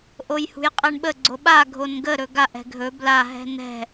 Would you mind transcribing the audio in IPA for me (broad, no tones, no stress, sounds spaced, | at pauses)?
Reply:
ʔ o j h ṳ j qʼ ɛ ɳ ɓ ə ɡ͡ǀ o ɓ a ɡʱ o n ɡ ə ɾ ɵ ɡ a ʔ ɛ̤ ɡʱ ɵ b l a ɦ ɛ̤ n ɛ̤